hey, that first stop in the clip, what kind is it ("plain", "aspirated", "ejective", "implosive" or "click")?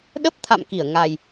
implosive